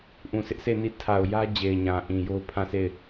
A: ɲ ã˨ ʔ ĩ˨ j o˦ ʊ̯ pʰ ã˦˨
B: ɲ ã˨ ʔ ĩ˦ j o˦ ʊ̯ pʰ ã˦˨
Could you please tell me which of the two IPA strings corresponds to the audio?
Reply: A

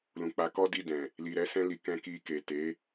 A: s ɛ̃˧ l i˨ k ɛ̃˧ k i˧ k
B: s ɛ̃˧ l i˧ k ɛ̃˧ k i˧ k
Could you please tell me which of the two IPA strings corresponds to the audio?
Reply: A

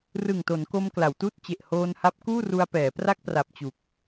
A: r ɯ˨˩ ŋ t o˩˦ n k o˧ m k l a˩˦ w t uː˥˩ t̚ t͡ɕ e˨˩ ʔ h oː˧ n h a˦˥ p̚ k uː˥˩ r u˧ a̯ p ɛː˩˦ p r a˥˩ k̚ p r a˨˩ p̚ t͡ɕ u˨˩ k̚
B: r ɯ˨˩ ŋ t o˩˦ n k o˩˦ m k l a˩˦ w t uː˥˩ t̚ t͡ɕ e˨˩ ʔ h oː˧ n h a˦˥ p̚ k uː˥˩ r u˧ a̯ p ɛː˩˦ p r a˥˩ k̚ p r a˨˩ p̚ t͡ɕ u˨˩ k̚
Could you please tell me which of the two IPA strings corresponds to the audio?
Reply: A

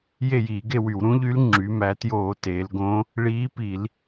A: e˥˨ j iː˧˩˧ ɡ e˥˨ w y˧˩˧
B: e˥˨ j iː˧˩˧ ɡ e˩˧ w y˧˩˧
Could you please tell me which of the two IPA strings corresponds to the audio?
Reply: A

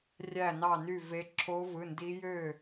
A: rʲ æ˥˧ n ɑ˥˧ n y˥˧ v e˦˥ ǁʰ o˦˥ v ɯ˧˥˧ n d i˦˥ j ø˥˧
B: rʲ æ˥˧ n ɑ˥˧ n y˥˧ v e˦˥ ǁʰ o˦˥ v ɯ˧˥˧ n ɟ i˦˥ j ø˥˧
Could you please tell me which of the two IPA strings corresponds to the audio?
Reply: A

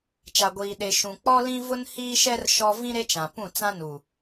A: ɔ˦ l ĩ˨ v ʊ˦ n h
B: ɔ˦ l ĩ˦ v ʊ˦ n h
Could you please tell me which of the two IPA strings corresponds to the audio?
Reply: B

